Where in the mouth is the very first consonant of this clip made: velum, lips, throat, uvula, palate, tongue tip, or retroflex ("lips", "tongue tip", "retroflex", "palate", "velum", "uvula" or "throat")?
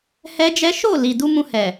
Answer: throat